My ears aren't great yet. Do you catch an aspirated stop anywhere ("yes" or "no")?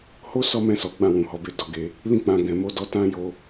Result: no